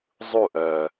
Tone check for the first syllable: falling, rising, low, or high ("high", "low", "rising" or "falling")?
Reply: falling